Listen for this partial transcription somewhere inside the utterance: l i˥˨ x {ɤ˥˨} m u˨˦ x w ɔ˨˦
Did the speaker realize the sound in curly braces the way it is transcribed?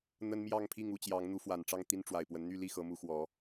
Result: no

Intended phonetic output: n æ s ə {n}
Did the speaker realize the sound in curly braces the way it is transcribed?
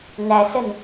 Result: yes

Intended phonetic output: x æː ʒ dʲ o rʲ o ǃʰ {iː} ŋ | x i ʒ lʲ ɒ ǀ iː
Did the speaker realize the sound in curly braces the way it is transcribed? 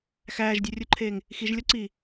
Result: no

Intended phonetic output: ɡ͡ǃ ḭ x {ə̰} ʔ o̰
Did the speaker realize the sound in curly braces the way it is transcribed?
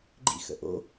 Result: yes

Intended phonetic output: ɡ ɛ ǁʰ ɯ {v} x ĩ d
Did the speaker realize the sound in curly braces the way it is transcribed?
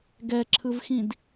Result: yes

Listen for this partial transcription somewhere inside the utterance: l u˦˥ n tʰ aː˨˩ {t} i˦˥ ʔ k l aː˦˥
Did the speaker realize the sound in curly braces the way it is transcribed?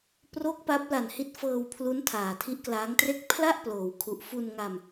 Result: no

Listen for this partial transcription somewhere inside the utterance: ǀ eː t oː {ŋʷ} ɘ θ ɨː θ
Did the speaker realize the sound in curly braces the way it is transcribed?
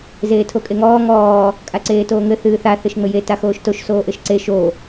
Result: no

